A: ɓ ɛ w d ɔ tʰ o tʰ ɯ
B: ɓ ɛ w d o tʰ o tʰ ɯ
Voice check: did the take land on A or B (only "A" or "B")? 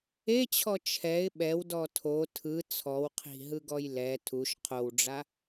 A